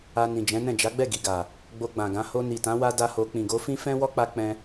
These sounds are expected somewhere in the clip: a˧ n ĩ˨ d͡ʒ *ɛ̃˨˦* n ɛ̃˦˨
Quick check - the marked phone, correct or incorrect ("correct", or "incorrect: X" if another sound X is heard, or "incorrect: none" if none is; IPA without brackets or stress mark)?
correct